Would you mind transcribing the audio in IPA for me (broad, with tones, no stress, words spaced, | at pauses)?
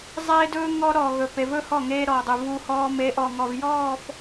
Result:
zˤeː˦dɵː˦ ŋɔ˦ ɾɔ˨ɣɵ˨pe˨vɵ˦ hɔ˦˨ŋeː˦ɾɔː˨dˤu˨ vu˦hɔː˦ me˨˦ʔɔ˨ ŋɔ˨vjɔː˦˨f